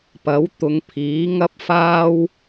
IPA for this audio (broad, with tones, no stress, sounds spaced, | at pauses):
p ɐ˨˥ w t̪ ʊ˨˧ ŋ pʰ iː˨˥ ŋ ɐ˥ p̚ f aː˥ w